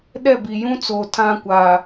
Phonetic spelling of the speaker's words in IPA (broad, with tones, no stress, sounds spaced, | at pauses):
ɗ ɛ˦˨ b i˨ j ũ˦ t͡s oː˨ tʰ ã˦ kʷ a˨